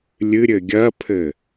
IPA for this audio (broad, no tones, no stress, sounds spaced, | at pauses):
lʲ ɨ ɾʲ ɘ ɡʲ ɐ pʰ ɘ